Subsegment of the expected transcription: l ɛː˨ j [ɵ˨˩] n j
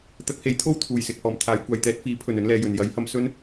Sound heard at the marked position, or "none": ɵ˨˩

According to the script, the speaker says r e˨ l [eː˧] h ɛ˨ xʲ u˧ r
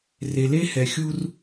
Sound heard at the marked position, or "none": e˧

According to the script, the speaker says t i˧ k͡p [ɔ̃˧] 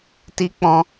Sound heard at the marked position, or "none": ɔ̃˧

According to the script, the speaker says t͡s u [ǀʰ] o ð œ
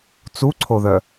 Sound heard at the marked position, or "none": ǀʰ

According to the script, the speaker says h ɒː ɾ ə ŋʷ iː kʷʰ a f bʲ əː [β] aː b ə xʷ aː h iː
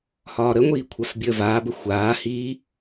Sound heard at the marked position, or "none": v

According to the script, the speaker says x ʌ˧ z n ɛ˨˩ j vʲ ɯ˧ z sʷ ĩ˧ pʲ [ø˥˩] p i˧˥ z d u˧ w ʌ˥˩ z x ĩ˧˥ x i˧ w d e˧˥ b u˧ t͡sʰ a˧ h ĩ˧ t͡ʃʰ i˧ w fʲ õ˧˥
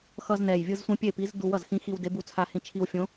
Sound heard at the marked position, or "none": e˥˩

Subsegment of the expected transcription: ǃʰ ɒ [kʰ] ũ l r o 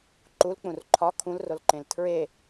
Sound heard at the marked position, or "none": kʰ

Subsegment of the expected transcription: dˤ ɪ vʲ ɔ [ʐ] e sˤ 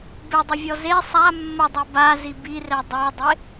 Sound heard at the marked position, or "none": z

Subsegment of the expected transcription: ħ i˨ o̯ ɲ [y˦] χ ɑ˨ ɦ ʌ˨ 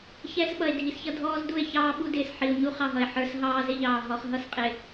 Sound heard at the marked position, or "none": u˦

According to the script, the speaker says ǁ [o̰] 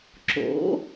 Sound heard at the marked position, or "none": o̰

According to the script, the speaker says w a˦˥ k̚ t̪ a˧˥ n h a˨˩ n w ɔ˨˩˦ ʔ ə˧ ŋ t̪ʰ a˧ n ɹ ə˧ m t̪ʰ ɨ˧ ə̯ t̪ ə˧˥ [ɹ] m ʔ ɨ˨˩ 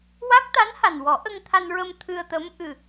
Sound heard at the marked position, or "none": none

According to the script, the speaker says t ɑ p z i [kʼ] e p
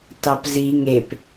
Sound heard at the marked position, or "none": ŋ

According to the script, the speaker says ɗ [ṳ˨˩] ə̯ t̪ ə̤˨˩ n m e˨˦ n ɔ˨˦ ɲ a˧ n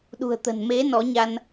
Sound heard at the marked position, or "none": ṳ˨˩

